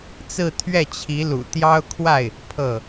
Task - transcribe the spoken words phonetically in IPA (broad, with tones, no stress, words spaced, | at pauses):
t͡sɹ̩˥˧t̪ʰɥɛ˥˩t͡ɕʰi˧˥lṵ˨˩ t̪jɑ˥ʊ̯kʰwa˥˩ɪ̯ | pʰɤ˥˩